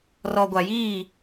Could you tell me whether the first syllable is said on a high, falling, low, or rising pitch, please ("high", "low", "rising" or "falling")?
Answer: low